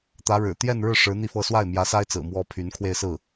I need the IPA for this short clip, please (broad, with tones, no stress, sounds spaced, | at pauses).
t̪ ä˧˥ ɻ ɻ̩˨˩ t̪ j ɛ˥˧ n ɻ ɻ̩˥˩ ʂ ɻ̩˧˥ n̪ i˥˧ f ɤ˥˧ s w a˥˩ ɪ̯ m j ä˧˥ s a˥ ɪ̯ t͡s ɹ̩˨˩ m w ɔ˥ pʰ y˧˥ n kʰ w e˥˧ ɪ̯ s ɹ̩˥˩